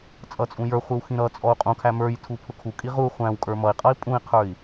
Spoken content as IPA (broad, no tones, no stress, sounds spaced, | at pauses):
t͡sʼ ʌ t͡sʼ ũ j ə˞ χʷ i w x ĩ ɾ ʌ t͡sʼ ɔ u̯ qʼ ũ kʰ æ m ə˞ j tʰ u pʰ ʊ kʰ u kʼ i ʁ u χʷ æ̃ w kʼ ə˞ m ʌ i̯ qʼ ʌ i̯ pʼ ũ i̯ qʰ ə˞ i̯